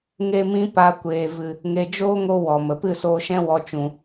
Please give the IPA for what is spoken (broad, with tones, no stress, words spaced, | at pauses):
ŋe˦mĩ˦ pa˧kʷeː˨vɨ˨ | ŋe˧ d͡ʒoː˦ŋo˧ wɔ˨mə˨ pɨ˦˨soː˧ʃɛ̃˦ wɔ˧t͡ʃũ˨